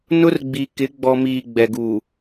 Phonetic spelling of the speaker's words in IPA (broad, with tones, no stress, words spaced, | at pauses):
nʊ˦rɡ͡bi˨kɪ˨˦ ɡ͡bɔ˨miː˨ ɡ͡bɛ˨ɡu˨